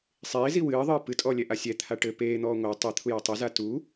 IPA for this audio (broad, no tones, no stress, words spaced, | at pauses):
sˤeːzi wɨːðˤɨː pɨtʼɔlʲɛʔa sʲɛt̪ʰa ʈɘ peːn̪ɔː ŋʷa tˤet̪ʰuja tˤɛza tu